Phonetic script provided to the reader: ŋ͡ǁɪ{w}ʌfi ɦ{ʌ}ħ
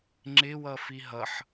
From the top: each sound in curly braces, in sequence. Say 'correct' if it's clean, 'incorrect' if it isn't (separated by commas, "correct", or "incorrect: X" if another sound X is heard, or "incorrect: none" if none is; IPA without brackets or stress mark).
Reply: correct, correct